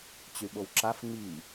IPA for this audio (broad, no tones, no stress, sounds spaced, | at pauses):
t͡ɕ y ɓ o w ǁ a f ŋ͡m i